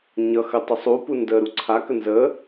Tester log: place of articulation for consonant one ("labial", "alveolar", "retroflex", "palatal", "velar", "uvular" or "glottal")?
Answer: palatal